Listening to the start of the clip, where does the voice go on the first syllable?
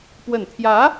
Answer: low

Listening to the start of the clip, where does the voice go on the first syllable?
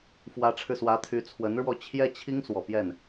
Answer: rising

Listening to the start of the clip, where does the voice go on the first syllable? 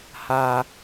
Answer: high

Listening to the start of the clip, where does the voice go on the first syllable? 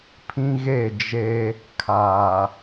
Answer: high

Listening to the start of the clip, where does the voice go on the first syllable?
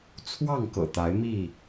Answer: falling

